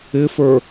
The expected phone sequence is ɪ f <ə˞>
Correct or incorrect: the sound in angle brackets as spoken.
correct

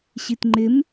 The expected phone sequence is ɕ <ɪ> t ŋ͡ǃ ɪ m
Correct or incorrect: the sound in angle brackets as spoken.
incorrect: i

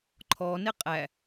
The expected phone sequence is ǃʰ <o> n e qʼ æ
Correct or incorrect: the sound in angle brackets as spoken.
incorrect: ɔ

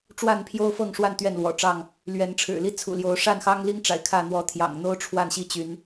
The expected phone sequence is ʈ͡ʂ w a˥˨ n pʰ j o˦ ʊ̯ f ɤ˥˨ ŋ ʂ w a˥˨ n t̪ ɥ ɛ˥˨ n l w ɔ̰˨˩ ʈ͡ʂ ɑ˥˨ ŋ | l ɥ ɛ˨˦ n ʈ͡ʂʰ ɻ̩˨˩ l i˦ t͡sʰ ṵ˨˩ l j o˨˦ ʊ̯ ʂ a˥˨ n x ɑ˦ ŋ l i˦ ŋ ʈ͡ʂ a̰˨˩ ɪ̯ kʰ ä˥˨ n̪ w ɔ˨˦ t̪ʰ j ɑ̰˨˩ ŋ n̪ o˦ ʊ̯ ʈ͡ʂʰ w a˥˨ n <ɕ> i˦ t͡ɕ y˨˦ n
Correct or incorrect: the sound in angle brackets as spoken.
correct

